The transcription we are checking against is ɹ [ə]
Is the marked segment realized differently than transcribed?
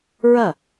yes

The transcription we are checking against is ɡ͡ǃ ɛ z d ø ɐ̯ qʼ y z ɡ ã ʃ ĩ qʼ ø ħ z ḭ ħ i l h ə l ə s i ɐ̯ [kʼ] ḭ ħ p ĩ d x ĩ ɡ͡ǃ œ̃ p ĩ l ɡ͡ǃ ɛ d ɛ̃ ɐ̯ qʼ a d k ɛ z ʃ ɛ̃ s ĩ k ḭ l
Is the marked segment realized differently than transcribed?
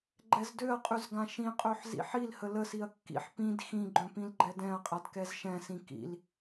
yes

